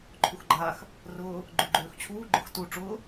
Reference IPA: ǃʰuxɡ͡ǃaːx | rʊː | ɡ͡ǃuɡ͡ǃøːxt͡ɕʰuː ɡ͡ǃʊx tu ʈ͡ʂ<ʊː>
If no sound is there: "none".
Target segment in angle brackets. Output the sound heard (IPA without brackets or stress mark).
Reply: ʊː